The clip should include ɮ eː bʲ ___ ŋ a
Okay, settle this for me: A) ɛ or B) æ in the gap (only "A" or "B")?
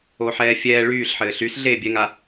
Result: A